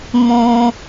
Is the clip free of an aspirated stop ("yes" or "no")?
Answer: yes